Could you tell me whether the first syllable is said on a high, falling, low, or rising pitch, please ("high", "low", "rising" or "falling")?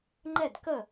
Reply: falling